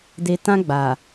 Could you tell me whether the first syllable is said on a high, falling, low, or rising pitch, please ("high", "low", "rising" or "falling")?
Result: high